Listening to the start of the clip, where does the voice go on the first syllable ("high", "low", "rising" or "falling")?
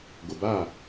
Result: low